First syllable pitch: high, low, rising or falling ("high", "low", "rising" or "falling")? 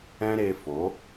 high